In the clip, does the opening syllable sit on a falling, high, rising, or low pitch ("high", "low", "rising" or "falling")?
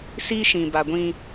high